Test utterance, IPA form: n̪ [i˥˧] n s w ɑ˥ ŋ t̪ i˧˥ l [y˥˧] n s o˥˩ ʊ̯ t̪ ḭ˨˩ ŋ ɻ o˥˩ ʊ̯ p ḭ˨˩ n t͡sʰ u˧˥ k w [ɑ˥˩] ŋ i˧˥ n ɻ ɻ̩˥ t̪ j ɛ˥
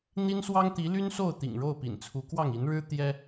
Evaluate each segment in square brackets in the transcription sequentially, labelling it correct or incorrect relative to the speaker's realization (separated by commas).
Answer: incorrect, incorrect, correct